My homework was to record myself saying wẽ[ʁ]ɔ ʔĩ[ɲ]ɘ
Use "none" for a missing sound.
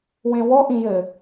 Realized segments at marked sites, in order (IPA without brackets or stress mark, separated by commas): w, j